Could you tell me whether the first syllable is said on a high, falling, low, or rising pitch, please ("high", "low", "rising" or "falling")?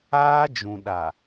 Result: high